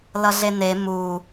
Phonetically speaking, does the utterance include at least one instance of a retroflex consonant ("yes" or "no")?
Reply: no